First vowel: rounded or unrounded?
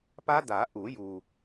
unrounded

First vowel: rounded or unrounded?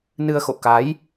unrounded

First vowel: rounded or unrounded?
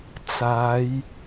unrounded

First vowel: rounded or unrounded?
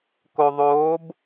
rounded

